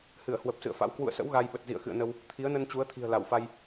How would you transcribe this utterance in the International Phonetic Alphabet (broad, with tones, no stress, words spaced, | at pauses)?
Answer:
hɨ˧˩ə̯hwə˨˩p̚sɨ̰˧˨ə̯fa̰˧˥w kwṵ˧˨ə̯sə̰˧˥w ɣa˧jɓə˨˩t̚ zḭ˧˨ə̯xɨ̰˧˨ə̯nə˧w | t̪ʰi˨˦ə̯nə˧nt͡ɕu˨˦ə̯ t̪ʰi̤˨˩ə̯ la˧˩wfa˧j